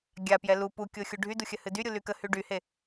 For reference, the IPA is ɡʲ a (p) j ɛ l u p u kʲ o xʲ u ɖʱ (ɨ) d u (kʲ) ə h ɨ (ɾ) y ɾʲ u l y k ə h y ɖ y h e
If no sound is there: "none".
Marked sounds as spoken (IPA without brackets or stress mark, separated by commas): p, y, xʲ, d